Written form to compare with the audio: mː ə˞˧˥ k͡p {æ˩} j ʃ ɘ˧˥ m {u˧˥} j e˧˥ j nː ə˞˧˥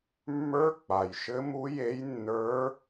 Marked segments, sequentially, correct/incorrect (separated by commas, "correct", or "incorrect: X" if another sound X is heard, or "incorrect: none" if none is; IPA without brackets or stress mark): incorrect: a˩, correct